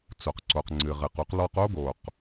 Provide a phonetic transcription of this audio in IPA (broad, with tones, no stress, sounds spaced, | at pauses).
t͡s o˨ q ǀ o˨ q ŋ͡ǀ ɨ˨ ʁ ɨ˨ q u˦ q l ɔ˦ q o˦ ɡ o˨ q